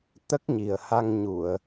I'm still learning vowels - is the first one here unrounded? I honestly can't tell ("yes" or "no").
yes